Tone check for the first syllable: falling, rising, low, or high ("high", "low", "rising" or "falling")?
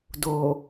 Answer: low